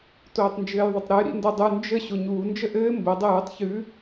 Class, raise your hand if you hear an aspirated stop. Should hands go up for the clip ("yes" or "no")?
no